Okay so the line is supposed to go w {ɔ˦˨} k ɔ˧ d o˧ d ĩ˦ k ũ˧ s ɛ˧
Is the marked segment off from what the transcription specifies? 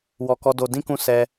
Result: yes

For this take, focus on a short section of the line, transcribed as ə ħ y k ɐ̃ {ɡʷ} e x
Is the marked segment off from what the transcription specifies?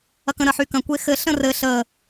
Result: yes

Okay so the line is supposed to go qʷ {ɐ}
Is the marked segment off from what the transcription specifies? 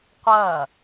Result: no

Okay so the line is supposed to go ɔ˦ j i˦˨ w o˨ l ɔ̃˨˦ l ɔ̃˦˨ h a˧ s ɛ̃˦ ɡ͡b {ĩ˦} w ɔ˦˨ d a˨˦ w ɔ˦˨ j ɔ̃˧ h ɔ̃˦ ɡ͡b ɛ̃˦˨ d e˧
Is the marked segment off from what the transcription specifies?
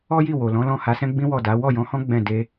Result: no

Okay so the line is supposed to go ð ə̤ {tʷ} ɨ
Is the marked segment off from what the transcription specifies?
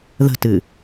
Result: yes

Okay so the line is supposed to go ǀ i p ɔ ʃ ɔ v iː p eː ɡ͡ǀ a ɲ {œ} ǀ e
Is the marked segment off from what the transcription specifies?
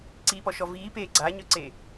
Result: no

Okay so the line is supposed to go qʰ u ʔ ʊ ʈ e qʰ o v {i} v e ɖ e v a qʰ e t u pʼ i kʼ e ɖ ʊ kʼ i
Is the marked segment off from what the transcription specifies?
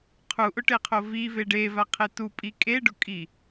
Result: no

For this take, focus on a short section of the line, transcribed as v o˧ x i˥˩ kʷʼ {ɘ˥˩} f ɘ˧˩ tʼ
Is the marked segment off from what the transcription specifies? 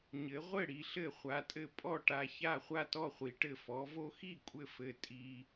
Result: no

